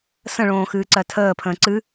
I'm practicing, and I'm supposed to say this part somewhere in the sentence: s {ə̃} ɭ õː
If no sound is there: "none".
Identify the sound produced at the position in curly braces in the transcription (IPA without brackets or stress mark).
ə̃